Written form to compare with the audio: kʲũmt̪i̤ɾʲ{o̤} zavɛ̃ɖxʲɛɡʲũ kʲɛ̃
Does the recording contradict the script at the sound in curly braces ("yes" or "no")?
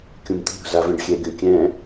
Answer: no